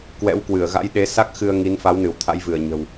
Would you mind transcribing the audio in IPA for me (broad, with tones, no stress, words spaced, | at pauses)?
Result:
kwɛ̰˧˥wkwɨ˧˩ə̯ɣa̰˧˥j ɗe˨˦sa˦˥k̚xɨ˧ə̯ ŋi˨˦nfa˨˦w nɨ˧˩wt̪ʰa̰˧˥jvɨ˧˩ə̯ɲə̤˨˩w